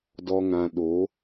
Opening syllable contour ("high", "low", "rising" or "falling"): low